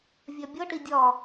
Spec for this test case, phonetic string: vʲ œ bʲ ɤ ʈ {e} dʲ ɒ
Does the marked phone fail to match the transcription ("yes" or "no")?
yes